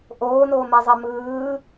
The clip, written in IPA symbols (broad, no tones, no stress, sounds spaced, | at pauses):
ʔ oː n oː m ɛ zˤ e m ɯː